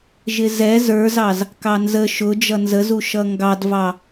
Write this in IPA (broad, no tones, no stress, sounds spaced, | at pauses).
ʒ ɪ z ɛ z ə˞ z ɑ z | k ɑ n z ə ʃ ʊ d͡ʒ ʌ n z ə z u ʃ ʌ ŋ ɡ ɑ d v ɑ